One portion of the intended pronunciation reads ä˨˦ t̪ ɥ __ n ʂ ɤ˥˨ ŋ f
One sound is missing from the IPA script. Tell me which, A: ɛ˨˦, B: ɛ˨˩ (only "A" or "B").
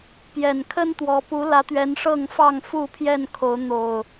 A